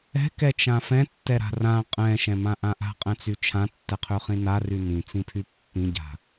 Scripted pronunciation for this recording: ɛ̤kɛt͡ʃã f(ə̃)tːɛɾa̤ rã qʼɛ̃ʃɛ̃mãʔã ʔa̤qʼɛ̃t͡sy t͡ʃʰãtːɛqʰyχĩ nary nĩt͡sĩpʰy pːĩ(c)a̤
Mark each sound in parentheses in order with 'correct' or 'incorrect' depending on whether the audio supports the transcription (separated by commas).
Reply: incorrect, incorrect